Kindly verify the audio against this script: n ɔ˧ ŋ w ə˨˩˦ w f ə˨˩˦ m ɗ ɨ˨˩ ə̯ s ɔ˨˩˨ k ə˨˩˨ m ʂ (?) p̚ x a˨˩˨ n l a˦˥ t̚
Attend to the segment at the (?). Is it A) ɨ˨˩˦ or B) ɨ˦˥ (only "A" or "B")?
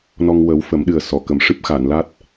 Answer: B